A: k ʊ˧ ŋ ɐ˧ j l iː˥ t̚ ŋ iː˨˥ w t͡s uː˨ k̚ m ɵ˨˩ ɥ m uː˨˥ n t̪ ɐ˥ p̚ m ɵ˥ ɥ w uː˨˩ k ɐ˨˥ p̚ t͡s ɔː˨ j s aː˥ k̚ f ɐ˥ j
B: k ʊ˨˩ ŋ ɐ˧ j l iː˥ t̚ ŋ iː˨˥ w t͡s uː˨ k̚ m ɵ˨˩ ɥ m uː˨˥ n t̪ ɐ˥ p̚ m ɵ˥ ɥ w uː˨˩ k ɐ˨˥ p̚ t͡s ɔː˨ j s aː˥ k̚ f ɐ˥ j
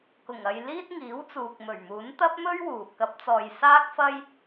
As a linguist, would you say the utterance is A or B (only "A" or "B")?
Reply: B